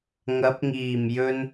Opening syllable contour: rising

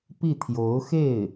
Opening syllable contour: falling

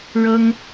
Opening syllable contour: high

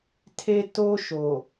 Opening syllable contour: high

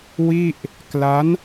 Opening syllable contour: falling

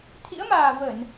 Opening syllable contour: rising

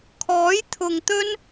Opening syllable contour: rising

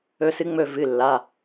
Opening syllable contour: rising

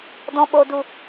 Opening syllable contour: low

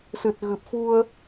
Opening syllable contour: low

